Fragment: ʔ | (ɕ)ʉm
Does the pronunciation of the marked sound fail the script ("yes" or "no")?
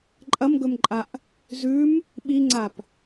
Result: yes